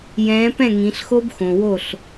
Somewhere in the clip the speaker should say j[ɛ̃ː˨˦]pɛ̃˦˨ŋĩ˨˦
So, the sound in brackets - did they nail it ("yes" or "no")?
yes